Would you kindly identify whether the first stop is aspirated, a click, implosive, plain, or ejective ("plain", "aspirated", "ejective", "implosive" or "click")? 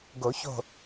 plain